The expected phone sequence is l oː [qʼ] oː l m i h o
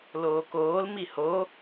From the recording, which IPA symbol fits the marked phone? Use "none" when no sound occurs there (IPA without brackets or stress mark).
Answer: k